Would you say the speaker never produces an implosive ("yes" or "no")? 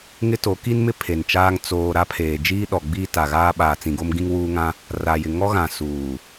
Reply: no